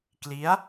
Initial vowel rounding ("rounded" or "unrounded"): unrounded